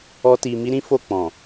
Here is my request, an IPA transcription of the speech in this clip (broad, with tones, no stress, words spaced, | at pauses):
ɔ˦ti˧ mi˦ɾĩ˦fo˦˨ k͡pɔ̃˨